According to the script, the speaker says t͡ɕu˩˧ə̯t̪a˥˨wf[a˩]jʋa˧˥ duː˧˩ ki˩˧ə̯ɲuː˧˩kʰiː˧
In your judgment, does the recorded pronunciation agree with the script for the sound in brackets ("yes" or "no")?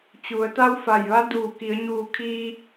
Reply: no